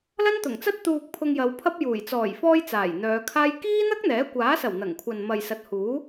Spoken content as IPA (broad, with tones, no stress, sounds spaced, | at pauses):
l ɐ˥ n t̪ ʊ˨˩ ŋ t͡s ɐ˥ t̚ t̪ uː˨ k̚ pʰ ʊ˧ ŋ j ɐ˨˧ w pʰ ɐ˥ p̚ j uː˨˩ j t͡s ɔː˨˩ j f ɔː˧ j t͡s aː˨˩ j n̪ œː˨˧ kʰ aː˥ j k iː˥ n̪ ɐ˥ k̚ n̪ ɛː˨˥ kʷ aː˨˥ s ɐ˨˩ w n̪ ɐ˨˩ ŋ kʷʰ ɐ˨ n m ɐ˨ j s ɐ˨ t̚ h uː˨˥